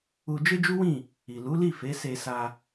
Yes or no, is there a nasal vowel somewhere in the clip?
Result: yes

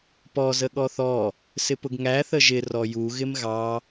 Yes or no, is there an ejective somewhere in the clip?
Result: no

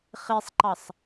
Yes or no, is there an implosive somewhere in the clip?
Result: no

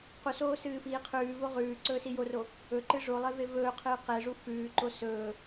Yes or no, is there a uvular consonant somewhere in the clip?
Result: yes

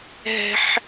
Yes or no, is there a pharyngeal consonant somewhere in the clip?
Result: yes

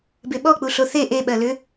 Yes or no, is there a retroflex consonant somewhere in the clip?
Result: no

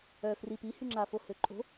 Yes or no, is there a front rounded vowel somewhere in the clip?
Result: yes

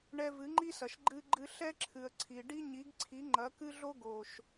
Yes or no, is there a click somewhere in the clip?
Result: yes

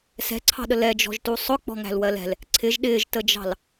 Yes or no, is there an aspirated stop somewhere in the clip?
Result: yes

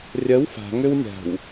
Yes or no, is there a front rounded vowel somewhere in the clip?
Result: yes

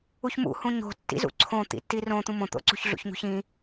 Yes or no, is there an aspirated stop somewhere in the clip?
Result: yes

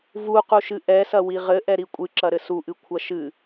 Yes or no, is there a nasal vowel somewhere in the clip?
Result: no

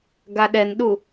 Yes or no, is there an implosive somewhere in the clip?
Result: yes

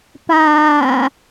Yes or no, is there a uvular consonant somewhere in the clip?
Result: no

